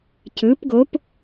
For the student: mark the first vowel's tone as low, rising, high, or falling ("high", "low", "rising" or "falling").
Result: rising